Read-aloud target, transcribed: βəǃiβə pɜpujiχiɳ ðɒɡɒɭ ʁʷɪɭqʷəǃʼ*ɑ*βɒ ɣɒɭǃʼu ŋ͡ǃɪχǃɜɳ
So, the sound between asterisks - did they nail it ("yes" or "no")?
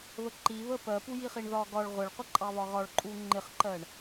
yes